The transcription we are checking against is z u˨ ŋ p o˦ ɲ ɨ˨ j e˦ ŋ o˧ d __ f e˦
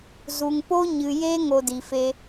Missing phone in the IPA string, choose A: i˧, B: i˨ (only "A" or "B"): B